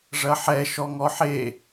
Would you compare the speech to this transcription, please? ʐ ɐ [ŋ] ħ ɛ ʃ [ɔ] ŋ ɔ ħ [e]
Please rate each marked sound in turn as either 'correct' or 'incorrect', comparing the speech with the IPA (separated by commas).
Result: incorrect, correct, correct